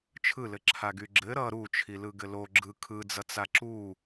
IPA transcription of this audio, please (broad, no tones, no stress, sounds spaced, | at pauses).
t͡ʃʰ ɯ l ɘ ǁʰ a ɡ y ɡ͡ǁ ɘ ɾ ʌ ɾ u t͡ʃʰ i l ɯ ɡ ɘ l o ɡ͡ǁ ɯ kʰ ɯ d͡z ʌ t͡s a ǁ u